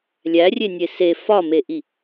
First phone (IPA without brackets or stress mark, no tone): lʲ